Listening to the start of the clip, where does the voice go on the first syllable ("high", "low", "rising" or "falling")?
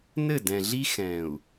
falling